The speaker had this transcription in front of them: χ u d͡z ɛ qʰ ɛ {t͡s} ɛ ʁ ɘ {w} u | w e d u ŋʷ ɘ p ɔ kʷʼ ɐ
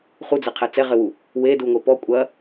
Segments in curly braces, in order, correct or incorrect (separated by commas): correct, correct